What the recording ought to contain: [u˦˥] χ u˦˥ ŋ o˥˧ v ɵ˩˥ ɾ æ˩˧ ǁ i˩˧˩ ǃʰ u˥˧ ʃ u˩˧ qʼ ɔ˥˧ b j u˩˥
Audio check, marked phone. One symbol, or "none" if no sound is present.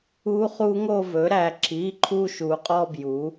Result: u˦˥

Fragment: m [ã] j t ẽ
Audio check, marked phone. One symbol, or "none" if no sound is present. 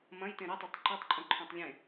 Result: ɐ̃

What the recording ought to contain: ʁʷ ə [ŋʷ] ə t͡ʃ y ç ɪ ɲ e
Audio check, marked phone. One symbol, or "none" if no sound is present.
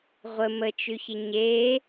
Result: m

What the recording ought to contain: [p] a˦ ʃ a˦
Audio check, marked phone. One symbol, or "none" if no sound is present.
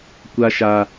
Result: kʷ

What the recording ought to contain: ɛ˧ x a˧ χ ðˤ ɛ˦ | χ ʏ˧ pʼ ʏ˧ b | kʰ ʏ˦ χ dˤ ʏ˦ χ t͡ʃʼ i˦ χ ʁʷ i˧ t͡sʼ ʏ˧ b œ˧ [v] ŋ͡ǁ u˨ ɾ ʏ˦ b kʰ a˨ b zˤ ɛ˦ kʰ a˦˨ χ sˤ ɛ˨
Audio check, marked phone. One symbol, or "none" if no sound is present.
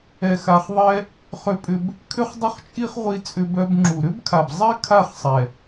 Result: b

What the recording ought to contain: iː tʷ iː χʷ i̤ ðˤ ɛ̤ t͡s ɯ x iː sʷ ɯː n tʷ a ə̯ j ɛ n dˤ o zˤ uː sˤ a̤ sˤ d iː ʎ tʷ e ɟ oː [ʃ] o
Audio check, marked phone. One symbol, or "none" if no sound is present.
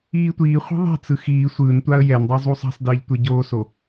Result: s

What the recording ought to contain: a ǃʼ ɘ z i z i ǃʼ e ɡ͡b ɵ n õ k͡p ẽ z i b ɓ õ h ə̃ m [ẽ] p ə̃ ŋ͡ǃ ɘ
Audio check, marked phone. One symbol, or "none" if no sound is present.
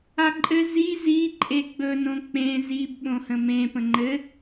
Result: ẽ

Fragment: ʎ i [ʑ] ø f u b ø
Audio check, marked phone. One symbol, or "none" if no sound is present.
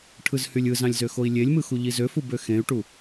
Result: z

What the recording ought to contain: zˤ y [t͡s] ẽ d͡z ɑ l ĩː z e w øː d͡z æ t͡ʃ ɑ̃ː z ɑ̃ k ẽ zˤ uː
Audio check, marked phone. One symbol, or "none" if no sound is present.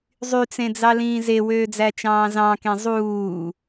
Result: t͡s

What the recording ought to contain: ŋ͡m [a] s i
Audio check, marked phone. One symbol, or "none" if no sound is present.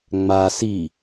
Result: a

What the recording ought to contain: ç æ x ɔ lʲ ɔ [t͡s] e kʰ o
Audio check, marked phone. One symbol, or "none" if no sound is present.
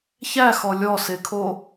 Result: s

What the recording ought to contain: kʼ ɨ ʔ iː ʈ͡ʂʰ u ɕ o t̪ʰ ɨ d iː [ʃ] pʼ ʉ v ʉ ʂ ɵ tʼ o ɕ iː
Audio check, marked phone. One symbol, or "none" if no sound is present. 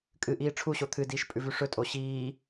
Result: ʃ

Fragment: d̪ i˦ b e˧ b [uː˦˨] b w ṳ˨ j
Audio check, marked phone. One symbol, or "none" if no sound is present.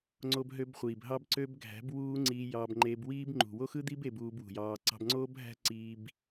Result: uː˧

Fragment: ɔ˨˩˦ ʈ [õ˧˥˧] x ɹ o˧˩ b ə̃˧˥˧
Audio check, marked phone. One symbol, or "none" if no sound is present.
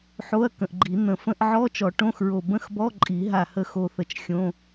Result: õ˧˥˧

